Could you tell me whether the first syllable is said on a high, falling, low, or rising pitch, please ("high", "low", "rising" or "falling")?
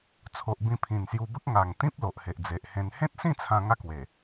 low